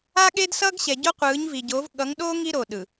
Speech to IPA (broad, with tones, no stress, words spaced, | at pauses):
a˦ɠe˦dsʌː˦ɡɕɛ˨ ɟo˦qʷɯː˨˦ɲvi˨ɟo˨˦v ɠʌ˨˦ŋɗoː˦ ŋi˦ɾo˨ɗɯ˨